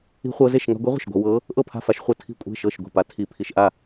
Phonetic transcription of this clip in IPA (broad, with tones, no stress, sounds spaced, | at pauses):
i̤˧ χʷ ɤ˧ z e˥˩ ʃ ŋ a̤˧ ɡʷ i˧˥ ʁʷ e̤˥˩ ʃ ɡʷ a̤˧ w ɤ˧˥ | ʔ ɤ˥˩ pʰ a̤˥˩ f a˥˩ ʃ χʷ ɤ˥˩ tʰ i̤˥˩ kʷʼ e̤˥˩ ʃ ɤ˥˩ ʃ ɡʷ i̤˥˩ p a˧ tʰ i˧˥ pʰ i˧ ʃ ʔ a˥˩